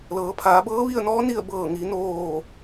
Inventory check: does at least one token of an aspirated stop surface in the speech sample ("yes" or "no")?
yes